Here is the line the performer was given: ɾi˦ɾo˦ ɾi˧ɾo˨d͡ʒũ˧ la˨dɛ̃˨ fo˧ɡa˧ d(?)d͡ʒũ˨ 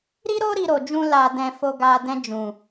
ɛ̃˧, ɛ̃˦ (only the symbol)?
ɛ̃˧